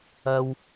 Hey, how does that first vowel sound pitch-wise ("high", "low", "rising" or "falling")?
low